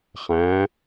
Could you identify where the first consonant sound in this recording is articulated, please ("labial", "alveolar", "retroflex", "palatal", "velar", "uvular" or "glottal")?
uvular